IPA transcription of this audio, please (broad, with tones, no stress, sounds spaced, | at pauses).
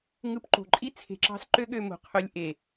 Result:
ŋ ɯ˧ p ǃ o̤˨ ǃʼ i˦ t͡sʰ e̤˧ ǁ ɑ̤˦ s ǃ ø˦ ɠ ø˧ m o̤˨ qʰ ø˧ lʲ ʔ e˨